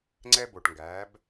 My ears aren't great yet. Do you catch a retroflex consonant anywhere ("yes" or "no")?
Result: yes